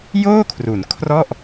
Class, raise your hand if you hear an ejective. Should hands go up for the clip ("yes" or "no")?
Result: no